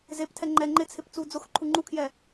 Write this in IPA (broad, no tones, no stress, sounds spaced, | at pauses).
z e p tʰ ɛ ŋ͡ǃ ɛ ŋ͡ǃ ɪ t͡sʰ ɪ p t͡s uː d͡z ʊ x ǃʰ u ŋ͡ǃ u kʰ j ɛ